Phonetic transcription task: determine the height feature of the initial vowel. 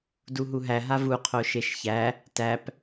high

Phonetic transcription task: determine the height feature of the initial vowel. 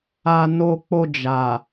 low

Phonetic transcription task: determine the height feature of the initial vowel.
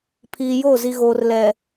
high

